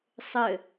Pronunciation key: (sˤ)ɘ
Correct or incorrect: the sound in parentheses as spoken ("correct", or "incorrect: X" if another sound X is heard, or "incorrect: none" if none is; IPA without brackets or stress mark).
correct